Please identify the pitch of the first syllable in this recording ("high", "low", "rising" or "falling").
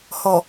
low